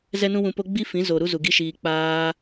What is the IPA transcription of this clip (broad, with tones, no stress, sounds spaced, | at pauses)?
z ɛ˦ n ũ˦ w ũ˧ p o˦ ɡ͡b i˦ f ĩ˨˦ z o˨ ɾ u˦ z u˨ ɡ i˦ ʃ iː˧ k͡p aː˦